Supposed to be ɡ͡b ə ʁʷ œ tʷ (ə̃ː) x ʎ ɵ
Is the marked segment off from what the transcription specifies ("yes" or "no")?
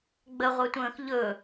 no